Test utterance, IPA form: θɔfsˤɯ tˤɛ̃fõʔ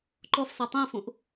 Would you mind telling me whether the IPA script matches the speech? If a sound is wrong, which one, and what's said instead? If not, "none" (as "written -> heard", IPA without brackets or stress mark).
θ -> ǃ